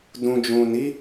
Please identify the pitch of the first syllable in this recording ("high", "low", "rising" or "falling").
low